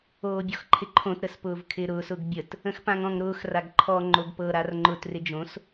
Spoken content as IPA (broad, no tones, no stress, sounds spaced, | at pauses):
oː bʲ ɔ x ǃʰ ɪ ǃʰ õ t ɾ ə s p ʊː v kʰ ɪː ɾ ʊː s ʊ ɡ bʲ ə t | ə̃ x p ã ŋ ɔ̃ ŋ ɾ ʊː x r a ɡ ǃʰ ɔ ŋ͡ǃ o ɡ p ɤ ɾ a r ŋ͡ǃ ʊ t r ɪ d͡ʒ õ s